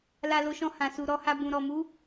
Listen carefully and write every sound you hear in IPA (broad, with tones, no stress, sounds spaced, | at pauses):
l a˧ l o˧ ʃ ɔ̃˧ h ã˨ s u˨ ɾ ɔ˧ h a˧ b ũ˨ ɾ ɔ˨ m u˨˦